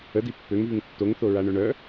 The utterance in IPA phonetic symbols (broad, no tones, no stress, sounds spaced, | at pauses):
ə d i pː ø ŋ v y ŋ tː o ŋ θ o ɹ a ɳ œ ɳ œ